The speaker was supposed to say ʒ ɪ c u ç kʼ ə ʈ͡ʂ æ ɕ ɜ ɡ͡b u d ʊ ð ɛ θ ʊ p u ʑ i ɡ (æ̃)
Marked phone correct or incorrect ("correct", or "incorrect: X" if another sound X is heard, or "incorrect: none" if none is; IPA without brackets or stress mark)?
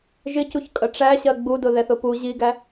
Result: incorrect: æ